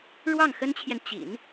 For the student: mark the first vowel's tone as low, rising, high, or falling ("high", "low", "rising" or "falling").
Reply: falling